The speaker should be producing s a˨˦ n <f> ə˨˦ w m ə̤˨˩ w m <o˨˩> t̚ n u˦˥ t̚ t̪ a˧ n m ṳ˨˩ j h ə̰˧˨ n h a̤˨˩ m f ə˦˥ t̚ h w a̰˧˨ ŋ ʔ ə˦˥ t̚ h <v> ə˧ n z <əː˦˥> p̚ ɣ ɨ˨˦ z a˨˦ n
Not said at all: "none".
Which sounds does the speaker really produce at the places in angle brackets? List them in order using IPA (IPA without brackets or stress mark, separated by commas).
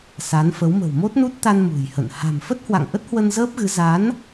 f, o˦˥, w, əː˦˥